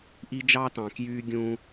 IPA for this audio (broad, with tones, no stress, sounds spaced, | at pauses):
ʔ i˦ d͡ʒ ɑ˦ t ɑ̃˨ k j yː˦ ɡʲ ũː˦